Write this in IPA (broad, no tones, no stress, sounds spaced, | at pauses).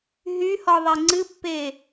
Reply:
ɦ y h ɔ ðˤ e ŋ͡ǀ ɨ pː e